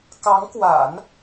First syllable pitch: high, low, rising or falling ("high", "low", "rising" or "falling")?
rising